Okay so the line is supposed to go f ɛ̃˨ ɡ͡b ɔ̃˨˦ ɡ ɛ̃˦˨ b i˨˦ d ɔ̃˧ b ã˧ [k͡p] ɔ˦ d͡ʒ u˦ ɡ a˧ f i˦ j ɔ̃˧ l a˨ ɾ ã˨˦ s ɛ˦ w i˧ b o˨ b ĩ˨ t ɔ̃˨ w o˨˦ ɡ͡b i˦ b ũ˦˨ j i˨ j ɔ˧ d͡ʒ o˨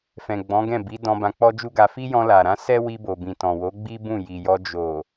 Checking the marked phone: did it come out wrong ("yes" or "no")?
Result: no